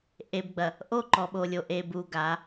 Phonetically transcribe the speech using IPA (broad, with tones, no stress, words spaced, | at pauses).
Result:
ʔe˨bɡ͡bɐ˨ | ʔo˦˨ǃɔ˨ɓo˨lʲo˨ ʔe˨bu˨ ɡa˨˦